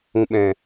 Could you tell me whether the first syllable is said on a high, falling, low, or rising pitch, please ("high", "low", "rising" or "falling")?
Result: low